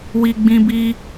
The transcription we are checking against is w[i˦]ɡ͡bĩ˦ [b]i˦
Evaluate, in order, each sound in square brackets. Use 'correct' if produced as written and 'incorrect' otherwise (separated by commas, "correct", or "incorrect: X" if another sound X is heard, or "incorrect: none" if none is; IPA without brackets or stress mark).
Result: correct, correct